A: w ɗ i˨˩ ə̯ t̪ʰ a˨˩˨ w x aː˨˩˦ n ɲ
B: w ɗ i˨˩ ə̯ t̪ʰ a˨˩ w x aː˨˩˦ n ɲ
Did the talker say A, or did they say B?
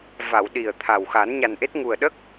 B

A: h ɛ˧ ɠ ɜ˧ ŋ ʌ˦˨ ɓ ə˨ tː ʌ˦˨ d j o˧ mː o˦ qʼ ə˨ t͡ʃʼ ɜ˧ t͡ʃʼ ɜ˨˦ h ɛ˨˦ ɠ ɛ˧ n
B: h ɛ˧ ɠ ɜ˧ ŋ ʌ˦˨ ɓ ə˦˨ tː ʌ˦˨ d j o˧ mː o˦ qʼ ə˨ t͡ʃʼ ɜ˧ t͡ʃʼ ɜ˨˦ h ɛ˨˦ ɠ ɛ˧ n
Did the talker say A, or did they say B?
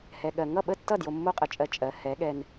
B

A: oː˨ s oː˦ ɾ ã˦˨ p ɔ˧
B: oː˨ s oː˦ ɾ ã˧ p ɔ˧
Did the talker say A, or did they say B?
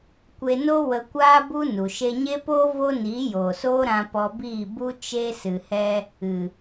B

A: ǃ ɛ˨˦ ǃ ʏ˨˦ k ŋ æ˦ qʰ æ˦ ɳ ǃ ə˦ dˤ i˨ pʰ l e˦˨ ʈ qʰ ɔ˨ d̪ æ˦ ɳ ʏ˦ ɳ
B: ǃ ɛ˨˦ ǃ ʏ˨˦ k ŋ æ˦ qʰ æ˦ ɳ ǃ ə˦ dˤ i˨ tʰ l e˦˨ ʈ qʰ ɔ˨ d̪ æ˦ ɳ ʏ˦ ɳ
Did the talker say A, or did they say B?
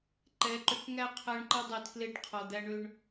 B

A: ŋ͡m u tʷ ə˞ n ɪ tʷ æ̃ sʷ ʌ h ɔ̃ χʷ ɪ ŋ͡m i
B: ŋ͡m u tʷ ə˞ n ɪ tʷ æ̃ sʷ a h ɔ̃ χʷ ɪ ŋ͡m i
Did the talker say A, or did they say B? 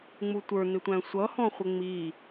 A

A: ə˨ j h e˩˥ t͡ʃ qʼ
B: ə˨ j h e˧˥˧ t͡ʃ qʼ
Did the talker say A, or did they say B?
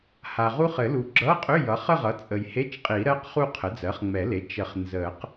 B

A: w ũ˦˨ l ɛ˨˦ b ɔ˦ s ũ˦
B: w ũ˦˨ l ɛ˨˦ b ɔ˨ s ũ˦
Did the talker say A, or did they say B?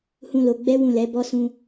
A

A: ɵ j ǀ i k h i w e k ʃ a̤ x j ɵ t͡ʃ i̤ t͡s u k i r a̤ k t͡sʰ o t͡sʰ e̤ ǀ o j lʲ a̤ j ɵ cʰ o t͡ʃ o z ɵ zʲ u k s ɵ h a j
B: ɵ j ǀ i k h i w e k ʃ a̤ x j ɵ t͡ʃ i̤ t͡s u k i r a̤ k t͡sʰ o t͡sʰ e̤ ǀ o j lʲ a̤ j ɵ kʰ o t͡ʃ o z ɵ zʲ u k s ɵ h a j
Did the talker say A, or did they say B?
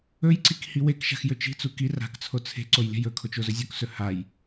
B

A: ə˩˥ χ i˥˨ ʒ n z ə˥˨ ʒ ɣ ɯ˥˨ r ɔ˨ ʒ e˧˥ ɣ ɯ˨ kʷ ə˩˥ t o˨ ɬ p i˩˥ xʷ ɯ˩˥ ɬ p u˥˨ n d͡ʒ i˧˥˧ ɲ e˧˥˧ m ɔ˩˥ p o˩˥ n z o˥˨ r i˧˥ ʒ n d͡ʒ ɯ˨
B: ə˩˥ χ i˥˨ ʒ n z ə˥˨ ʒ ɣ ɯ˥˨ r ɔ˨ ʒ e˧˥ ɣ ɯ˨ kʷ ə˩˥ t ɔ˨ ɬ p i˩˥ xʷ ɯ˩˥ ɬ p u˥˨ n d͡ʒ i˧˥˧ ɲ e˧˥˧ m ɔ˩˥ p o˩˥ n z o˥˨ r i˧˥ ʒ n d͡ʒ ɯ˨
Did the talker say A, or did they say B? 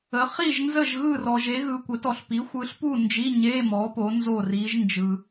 B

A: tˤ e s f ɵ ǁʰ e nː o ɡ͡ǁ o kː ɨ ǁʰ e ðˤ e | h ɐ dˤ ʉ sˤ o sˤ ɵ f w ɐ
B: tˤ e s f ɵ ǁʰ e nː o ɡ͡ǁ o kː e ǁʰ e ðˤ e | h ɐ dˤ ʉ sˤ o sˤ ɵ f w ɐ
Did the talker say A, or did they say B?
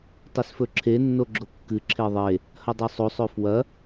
A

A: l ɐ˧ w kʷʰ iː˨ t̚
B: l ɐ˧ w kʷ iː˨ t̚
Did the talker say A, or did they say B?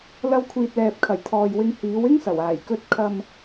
A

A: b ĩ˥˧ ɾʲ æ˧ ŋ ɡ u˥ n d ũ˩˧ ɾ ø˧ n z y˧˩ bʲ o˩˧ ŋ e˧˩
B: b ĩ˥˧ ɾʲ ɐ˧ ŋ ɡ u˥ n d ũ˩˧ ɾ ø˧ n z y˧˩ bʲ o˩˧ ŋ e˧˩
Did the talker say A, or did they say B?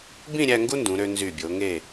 A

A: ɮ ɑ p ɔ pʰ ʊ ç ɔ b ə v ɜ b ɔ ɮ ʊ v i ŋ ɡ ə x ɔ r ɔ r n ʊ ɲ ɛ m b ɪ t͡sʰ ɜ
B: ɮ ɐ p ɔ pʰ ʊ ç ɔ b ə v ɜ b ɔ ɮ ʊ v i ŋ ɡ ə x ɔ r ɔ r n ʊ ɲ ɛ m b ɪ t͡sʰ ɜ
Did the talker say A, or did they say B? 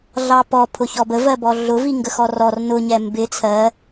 A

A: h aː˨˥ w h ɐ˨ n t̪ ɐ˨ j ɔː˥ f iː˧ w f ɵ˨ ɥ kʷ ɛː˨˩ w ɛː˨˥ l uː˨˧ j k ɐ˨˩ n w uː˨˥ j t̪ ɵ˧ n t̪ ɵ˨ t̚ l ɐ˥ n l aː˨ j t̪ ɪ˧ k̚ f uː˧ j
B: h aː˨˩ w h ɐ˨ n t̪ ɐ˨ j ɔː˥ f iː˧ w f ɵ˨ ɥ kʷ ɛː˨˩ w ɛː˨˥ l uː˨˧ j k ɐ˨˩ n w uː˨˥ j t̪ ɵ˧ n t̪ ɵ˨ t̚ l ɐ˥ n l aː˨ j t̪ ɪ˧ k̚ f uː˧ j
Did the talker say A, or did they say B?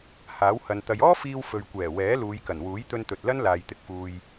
A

